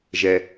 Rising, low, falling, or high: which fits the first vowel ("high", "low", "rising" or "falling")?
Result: low